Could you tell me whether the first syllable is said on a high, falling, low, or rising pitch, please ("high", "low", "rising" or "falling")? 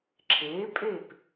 rising